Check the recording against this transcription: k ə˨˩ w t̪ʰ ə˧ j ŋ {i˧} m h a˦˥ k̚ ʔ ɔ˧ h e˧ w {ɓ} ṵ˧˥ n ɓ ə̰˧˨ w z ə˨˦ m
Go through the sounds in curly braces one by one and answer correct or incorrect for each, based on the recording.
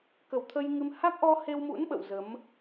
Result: incorrect: ɨ˧, incorrect: m

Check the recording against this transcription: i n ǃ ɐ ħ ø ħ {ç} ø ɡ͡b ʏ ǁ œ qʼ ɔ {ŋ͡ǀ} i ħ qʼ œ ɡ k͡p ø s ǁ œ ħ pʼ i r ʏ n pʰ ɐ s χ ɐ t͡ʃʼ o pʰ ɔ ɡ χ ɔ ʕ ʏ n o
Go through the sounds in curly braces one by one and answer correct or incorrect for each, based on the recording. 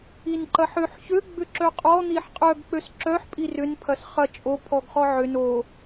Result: correct, incorrect: n̪

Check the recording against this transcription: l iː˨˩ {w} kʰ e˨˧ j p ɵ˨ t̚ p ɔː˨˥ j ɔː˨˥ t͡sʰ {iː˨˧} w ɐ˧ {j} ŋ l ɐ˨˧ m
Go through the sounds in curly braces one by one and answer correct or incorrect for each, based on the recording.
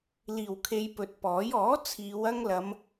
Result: correct, correct, incorrect: none

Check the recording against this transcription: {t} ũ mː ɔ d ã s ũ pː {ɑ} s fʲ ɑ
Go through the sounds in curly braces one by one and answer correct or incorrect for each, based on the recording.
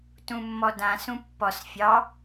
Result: correct, incorrect: ɔ

